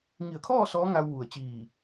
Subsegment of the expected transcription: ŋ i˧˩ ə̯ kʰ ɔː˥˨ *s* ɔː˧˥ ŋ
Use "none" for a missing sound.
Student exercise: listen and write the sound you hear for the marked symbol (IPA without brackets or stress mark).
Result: s